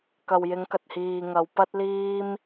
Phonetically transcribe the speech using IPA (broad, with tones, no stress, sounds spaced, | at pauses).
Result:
k ɐ˨ w j ɪ˨˧ ŋ k ɐ˨ t̚ h iː˨ ŋ ɐ˨˧ w p ɐ˧ t̚ l iː˧ m